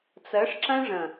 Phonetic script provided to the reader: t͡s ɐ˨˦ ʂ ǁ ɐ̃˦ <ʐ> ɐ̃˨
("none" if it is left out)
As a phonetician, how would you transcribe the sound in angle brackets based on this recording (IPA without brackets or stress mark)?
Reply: ʐ